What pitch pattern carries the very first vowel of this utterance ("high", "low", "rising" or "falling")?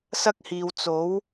high